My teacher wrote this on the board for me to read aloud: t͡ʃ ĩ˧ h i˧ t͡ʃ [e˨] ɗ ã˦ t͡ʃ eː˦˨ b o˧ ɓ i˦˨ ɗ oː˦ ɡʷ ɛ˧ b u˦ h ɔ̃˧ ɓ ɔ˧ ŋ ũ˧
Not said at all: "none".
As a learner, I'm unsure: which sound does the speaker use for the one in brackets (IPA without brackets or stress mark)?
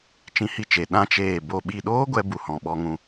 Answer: e˨